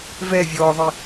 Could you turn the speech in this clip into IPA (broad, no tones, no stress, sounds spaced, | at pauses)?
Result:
v ɛ vʲ ɔː ðˤ i